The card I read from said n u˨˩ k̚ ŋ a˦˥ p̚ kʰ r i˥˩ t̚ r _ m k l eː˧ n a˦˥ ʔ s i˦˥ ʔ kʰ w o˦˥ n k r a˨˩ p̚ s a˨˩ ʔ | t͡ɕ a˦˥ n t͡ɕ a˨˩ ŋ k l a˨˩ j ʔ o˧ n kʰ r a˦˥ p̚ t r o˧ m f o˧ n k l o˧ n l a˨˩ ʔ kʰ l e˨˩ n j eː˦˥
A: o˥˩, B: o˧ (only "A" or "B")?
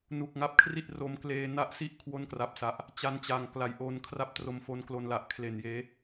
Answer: B